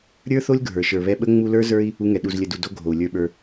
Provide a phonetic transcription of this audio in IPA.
ɾʲ ə˞˦ θ o˦ lʲ ɡʱ ə˞˨ ʃ ə˞˨ β ɛ˧ ɓ ə˦ ŋ͡m u˧ l ə˞˦ z ə˞˦ i̯ | u˧ ŋ ɛ˨ ɗ u˨ z lʲ ə˨ d u˨ d o˧ ɡʱ o˨ u̯ lʲ ə˞˧ ɓ ə˞˧

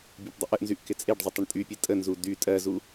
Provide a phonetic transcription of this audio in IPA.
bʲ a p dˤ ɪ ʔ ə ʔ n z y ʔ k ɪ t͡sʼ e ɖ zˤ ɪ tˤ ɪ ɳ tʼ y pʲ e tʼ ə n z u d y tʼ ɜ z u

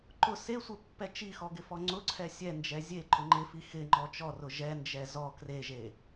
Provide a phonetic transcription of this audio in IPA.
ǃ ʊ s e sʷ e pː ɛ t͡ʃ i x ɔ ɡ ɪ f ɔ ŋ͡ǀ ʊ ǀʰ ɛ sʲ ɛ n d͡ʒ ɛ zʲ e ǃ ʊ ŋ͡ǃ ɪ f i x ɪ ŋ͡ǃ ɔ t͡ʃ ɔ r ʊ ʒ ɛ n d͡ʒ ɛ z ɔ k r e ʒ e

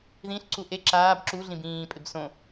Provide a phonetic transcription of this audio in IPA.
ð ĩ ɬ ǀ u ʔ e ǁ aː b ǁ u ɮ ĩ b ĩː pʼ ɪ b s õ

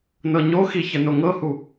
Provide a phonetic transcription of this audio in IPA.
n ɤ ɲ o x i ç ə n o ŋ ɤ h u

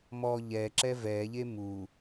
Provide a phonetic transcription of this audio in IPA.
m ɔ ʎ ɛ ǁ ɛ v ɛ ʎ e m u

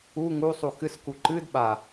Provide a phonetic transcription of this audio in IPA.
u ŋ u sˤ u x ɨ s k u ǃ ɨ d ɓ a

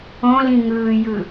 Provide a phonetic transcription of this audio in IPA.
õ l ĩ ŋ ɯː j ɯ

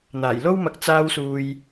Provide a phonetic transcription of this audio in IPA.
n̪ aː˨˩ j l o˥ w m ɐ˧ k̚ t͡s aː˧ w s uː˨ j

